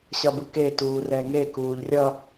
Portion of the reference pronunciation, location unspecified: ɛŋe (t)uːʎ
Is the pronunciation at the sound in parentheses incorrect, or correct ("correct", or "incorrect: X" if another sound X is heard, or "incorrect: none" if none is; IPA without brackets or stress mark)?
incorrect: k